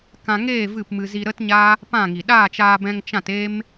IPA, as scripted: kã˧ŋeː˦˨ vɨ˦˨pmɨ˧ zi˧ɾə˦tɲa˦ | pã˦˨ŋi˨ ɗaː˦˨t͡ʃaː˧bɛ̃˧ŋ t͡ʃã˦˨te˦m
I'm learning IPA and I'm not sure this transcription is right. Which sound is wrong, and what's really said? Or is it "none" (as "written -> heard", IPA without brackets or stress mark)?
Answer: none